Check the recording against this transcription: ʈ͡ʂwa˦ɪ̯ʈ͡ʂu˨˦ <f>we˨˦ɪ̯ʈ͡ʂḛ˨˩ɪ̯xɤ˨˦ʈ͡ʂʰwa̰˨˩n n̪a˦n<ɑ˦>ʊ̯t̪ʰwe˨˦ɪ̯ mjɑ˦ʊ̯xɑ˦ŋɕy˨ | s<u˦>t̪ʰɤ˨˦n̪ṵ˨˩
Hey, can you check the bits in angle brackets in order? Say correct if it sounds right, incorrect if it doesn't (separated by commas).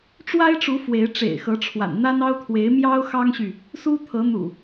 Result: correct, correct, correct